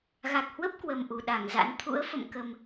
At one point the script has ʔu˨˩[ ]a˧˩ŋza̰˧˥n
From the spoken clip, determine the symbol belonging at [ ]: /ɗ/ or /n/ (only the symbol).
ɗ